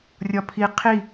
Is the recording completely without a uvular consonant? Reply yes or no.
no